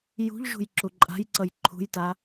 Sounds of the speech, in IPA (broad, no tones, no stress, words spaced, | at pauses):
jṳʎʒṳj ǁuǃʼa̤jǀʌj ǃʰṳjta